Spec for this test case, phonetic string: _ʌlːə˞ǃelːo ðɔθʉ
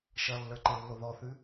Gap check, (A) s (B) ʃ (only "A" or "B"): B